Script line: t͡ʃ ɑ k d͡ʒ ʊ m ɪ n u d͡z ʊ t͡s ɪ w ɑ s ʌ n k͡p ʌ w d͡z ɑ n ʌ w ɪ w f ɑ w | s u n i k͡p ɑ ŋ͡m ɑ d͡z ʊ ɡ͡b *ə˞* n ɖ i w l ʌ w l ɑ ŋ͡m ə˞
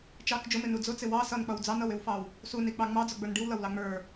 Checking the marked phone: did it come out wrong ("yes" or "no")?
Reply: no